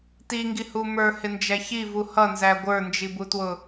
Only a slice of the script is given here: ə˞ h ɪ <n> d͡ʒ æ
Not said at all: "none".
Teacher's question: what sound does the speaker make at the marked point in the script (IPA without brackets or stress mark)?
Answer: n